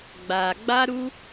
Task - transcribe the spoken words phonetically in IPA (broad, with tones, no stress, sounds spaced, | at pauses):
ɡ͡b a˨ ɡ͡b a˦ ɾ u˦